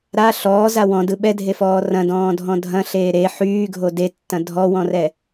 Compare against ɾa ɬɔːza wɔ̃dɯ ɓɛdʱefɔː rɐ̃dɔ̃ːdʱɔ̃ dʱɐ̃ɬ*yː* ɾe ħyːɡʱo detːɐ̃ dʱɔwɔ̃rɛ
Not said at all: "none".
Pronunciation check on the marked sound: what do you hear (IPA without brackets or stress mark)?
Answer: eː